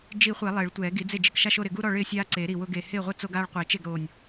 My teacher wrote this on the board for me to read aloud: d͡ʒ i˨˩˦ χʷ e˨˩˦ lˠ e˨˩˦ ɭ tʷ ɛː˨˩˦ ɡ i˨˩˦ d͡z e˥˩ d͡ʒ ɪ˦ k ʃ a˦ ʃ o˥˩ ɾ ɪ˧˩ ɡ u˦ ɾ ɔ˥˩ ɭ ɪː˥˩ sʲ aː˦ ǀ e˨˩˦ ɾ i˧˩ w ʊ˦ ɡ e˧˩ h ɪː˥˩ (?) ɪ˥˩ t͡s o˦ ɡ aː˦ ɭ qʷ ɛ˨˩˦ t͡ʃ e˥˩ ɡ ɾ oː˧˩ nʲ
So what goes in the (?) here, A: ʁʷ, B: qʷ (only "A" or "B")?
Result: A